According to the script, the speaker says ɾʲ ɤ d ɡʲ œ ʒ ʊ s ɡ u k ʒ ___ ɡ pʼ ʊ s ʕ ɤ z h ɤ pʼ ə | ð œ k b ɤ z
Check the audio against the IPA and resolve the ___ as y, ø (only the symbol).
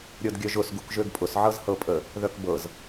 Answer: ø